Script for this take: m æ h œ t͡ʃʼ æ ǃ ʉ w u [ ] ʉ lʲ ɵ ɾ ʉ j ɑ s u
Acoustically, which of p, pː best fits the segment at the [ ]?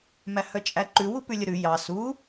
p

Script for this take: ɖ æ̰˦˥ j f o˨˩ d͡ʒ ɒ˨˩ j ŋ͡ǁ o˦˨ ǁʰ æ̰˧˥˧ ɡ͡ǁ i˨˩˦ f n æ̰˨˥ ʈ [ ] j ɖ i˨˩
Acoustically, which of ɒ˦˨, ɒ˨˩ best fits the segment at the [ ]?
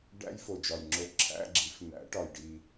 ɒ˨˩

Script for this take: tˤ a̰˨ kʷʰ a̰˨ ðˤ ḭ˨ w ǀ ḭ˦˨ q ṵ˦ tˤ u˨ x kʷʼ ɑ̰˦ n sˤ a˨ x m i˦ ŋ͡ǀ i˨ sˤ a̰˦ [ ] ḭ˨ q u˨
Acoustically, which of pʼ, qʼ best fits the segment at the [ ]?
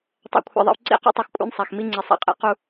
qʼ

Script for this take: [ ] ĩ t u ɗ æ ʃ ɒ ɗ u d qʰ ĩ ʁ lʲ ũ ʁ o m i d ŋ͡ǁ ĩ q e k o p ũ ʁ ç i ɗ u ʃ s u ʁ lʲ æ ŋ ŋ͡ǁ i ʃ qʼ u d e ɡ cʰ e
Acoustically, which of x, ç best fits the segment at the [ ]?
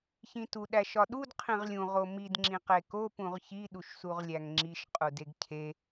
ç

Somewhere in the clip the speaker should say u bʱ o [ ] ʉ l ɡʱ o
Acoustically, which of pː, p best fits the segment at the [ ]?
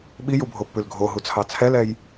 pː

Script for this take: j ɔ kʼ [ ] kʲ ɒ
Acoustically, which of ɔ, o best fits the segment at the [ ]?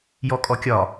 ɔ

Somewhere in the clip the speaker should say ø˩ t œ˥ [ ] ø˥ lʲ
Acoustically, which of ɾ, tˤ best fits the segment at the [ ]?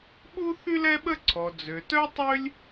tˤ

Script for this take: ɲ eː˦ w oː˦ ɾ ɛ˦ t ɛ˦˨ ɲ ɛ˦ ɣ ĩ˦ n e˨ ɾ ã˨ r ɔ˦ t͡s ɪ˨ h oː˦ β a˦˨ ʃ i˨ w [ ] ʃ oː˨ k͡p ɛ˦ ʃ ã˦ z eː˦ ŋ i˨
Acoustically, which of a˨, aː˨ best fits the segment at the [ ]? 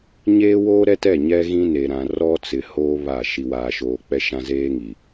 aː˨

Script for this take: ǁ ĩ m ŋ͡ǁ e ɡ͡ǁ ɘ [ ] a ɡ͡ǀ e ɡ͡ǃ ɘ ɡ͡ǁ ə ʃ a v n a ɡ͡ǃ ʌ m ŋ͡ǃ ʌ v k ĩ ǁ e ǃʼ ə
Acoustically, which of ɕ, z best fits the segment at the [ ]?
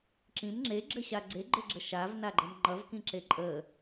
ɕ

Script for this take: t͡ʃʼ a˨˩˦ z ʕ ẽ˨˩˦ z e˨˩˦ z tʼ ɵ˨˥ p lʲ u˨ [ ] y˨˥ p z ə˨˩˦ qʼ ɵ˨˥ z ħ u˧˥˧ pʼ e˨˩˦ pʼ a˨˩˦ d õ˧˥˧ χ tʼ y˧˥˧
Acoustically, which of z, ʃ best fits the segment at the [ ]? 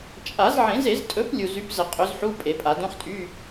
z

